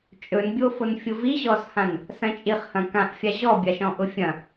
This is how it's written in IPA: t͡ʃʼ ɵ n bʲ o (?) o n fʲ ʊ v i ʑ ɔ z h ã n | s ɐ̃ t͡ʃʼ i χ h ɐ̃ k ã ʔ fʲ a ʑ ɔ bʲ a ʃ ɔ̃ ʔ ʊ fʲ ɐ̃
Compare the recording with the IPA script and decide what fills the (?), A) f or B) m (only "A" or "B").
A